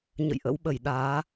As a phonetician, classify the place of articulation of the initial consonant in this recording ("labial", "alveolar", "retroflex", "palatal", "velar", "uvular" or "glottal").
palatal